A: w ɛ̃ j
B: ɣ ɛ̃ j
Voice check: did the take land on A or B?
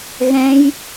B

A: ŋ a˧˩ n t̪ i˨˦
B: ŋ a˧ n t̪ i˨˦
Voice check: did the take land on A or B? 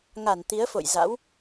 A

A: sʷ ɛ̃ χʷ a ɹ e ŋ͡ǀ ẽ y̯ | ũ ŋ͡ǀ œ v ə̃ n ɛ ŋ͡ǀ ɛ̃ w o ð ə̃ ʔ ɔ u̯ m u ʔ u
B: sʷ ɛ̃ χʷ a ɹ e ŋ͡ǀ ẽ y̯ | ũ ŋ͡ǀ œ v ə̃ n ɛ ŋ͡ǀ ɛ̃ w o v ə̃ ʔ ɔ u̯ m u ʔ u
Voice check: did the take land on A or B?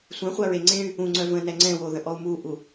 A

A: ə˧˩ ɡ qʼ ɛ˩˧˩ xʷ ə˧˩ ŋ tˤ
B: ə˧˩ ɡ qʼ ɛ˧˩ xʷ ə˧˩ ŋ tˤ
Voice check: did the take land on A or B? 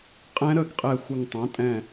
B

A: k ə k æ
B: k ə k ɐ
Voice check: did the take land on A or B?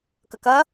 B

